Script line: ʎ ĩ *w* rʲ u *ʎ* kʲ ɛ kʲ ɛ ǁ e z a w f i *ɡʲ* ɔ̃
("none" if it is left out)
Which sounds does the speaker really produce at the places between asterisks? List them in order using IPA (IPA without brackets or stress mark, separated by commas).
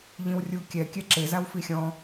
w, none, xʲ